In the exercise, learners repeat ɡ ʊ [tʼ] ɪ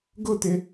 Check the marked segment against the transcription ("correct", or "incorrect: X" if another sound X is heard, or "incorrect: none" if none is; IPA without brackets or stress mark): incorrect: t̪